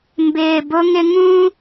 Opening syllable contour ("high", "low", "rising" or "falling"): low